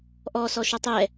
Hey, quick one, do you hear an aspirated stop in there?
no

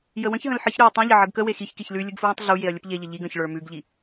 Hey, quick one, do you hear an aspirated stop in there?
no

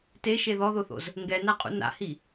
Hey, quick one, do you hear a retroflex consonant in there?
no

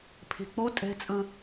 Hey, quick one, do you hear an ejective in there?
yes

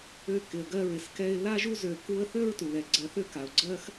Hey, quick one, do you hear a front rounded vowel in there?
yes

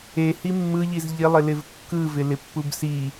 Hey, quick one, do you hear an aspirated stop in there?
no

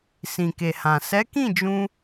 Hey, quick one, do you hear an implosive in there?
no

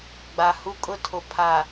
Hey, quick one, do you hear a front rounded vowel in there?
no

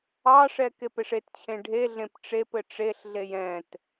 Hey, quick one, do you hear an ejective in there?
no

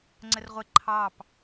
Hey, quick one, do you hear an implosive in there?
no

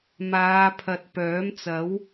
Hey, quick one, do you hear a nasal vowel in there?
no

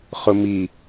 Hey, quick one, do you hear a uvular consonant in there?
yes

